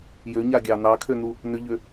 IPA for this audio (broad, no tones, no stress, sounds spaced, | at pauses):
j ø ɲ a ɡʲ ɑ n ɑ kʰ ø n u | n ʏ ʎ ø